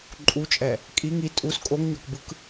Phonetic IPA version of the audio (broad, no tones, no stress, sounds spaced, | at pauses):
ǃʼ u t͡ʃʼ ɛ | kʼ i ŋ i tʼ u s kʼ o ŋ ɲ ɔ k b ɯ k